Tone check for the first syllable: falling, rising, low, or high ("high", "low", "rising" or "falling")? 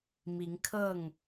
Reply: rising